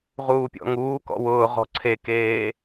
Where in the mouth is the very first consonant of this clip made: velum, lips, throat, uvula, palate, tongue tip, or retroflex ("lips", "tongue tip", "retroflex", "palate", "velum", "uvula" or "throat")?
uvula